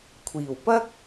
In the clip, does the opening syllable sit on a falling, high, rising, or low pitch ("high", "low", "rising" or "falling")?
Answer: low